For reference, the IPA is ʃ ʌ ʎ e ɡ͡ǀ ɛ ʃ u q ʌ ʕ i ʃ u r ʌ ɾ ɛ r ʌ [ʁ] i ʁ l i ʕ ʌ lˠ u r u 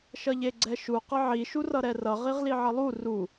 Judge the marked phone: correct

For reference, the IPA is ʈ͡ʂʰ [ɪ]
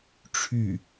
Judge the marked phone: incorrect: y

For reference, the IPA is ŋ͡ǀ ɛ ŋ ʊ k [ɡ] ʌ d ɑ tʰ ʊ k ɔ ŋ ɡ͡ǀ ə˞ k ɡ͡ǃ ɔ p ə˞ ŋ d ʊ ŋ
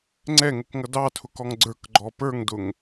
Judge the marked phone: incorrect: ŋ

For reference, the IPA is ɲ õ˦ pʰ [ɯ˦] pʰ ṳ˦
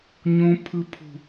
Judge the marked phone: correct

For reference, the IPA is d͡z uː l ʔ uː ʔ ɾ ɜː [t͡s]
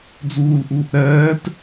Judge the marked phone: incorrect: t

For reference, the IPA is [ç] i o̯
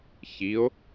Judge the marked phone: correct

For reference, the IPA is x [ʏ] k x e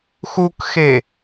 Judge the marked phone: incorrect: u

